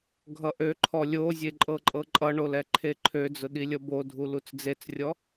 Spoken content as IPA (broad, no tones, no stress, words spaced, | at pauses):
ɡʱʌʔøǃʰɔ lʲozʲe ǃʼɤǃʼɤǃʼʌɳol ɛǃʰeǃʰød͡zʊ ɗilʲʌbodʱu lut͡sd͡zet͡srʲɔ